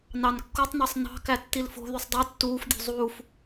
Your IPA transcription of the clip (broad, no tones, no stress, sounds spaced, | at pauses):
n ɑ n kː o tˤ n ɑ sˤ n ɑ̤ k æ tː i l f o̤ ð y sˤ dˤ u tː uː f dʲ o̤ zˤ uː f